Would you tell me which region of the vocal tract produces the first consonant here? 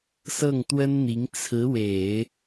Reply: tongue tip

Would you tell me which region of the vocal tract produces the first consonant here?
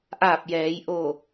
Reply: throat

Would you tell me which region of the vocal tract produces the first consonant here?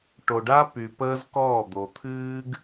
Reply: retroflex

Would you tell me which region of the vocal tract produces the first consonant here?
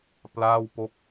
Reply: lips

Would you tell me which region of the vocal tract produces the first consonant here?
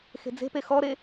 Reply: velum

